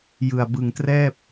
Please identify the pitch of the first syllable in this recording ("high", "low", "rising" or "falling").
low